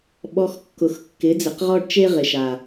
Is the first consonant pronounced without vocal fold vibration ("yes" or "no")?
no